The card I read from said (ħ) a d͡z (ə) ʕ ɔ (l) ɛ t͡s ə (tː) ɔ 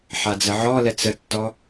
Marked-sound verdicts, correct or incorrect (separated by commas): correct, correct, correct, correct